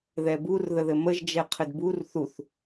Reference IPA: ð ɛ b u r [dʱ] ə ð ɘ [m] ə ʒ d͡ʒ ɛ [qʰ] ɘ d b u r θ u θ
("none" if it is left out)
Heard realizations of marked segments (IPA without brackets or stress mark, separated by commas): ð, m, qʰ